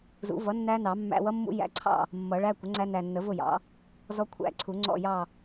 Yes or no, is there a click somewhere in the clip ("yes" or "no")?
yes